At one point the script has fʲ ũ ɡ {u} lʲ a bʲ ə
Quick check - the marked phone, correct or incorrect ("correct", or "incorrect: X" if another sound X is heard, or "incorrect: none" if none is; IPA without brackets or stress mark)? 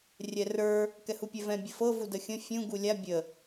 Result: correct